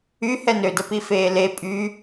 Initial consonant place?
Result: glottal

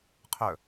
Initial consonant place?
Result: uvular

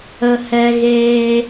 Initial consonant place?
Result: glottal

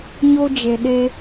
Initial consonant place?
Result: palatal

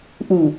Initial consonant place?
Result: glottal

